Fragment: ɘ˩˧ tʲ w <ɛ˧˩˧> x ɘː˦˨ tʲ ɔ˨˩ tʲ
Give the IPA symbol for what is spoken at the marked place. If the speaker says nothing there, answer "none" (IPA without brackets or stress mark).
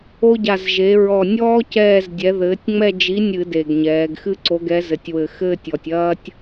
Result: ɘ˧˩˧